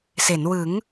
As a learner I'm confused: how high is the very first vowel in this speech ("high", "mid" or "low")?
mid